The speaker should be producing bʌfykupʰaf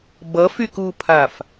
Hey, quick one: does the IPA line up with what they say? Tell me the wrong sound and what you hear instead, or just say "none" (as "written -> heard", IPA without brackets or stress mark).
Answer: none